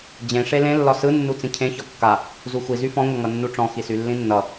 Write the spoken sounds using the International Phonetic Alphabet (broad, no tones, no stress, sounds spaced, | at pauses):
d͡ʑ ẽ ʂ e l ẽ lː ɒ s ɯ nː u t͡s ĩ cʰ ẽ ç ɒ kː a | z u xʷ i z y f ɔ̃ ŋʷ ʌ ŋ ʌ nː u ʈ͡ʂ ɔ̃ x i s y lː ĩ nː ʌ